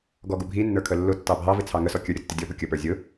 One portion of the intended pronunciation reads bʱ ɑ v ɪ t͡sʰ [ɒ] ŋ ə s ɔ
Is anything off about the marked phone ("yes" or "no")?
yes